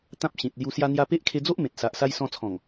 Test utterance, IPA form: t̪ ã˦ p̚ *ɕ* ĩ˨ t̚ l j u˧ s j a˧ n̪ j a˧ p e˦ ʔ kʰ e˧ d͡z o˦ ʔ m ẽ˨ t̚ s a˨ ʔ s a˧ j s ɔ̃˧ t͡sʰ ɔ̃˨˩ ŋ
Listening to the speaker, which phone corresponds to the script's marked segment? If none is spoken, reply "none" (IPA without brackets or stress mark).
ɕ